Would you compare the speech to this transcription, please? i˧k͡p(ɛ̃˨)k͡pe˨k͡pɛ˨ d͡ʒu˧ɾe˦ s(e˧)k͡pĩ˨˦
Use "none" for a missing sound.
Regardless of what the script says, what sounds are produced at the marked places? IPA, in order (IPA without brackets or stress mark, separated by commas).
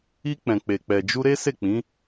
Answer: ɛ̃˨, e˦˨